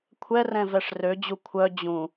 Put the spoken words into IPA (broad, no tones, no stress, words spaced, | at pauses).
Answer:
kʷʰɛrɛ̃ vɛʂrød͡ʑu kʷʰœ d͡ʑũ